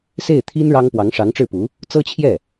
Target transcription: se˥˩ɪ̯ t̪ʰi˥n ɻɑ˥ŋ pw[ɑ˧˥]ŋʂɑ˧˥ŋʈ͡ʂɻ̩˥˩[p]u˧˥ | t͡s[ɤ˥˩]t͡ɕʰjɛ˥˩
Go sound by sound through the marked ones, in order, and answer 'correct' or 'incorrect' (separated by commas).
correct, correct, incorrect